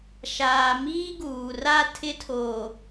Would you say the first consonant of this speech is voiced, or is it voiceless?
voiceless